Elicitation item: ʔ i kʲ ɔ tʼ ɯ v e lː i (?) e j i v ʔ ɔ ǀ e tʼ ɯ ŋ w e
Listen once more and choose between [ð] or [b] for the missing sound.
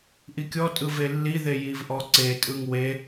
ð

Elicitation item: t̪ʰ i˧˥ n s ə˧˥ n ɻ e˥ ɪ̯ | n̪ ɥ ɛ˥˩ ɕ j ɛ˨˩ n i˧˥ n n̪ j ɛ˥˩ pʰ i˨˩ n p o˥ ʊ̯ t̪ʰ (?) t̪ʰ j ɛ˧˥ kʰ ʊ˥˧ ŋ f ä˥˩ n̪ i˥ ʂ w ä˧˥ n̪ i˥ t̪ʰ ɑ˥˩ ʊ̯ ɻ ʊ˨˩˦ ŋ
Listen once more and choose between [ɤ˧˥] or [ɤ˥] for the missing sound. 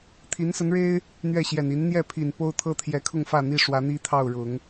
ɤ˥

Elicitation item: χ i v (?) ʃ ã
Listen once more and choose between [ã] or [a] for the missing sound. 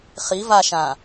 a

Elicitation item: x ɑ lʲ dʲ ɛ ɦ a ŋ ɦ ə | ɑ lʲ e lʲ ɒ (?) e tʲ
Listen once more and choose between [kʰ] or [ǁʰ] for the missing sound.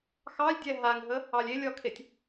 kʰ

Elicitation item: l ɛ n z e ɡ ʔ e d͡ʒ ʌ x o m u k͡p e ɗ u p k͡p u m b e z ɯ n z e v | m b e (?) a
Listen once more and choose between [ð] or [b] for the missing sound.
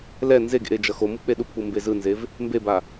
b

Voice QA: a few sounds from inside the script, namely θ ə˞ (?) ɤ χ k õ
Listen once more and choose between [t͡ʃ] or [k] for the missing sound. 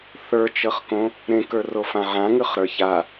t͡ʃ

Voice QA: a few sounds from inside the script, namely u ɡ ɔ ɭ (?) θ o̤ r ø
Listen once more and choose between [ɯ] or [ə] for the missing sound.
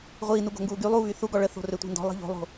ə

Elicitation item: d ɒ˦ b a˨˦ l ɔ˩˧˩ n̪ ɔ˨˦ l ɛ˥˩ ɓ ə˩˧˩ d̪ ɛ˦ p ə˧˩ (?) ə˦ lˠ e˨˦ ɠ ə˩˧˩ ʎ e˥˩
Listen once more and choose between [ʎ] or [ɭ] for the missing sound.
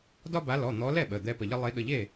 ʎ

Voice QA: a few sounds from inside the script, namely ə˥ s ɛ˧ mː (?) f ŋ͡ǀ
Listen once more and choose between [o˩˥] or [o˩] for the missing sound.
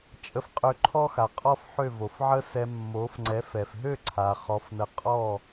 o˩˥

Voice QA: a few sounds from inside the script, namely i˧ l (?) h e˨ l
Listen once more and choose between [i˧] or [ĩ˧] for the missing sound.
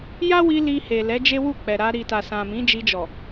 i˧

